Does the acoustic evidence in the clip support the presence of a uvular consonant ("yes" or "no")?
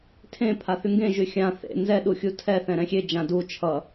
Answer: no